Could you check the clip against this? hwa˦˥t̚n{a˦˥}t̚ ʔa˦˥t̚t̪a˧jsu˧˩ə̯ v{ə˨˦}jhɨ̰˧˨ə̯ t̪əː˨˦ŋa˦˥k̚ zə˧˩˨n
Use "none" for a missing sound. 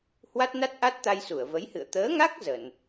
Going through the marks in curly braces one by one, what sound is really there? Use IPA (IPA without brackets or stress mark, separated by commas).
a˦˥, ə˨˦